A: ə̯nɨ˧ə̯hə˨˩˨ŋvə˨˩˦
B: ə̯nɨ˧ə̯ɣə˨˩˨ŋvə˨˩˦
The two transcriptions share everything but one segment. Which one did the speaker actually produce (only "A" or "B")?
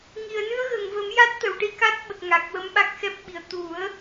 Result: B